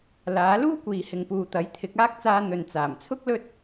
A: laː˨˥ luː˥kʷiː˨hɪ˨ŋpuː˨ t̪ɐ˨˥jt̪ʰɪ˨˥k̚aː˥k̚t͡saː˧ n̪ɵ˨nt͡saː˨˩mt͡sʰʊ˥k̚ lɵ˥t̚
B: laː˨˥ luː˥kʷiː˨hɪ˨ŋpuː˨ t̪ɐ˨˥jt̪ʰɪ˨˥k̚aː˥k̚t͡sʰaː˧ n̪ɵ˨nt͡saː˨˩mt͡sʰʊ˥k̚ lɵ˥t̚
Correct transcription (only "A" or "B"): A